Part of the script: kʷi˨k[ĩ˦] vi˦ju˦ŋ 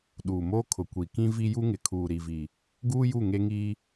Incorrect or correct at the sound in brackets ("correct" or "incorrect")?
correct